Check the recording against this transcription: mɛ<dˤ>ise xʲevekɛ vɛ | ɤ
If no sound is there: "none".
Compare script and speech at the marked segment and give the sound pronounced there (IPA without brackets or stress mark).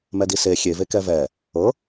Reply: d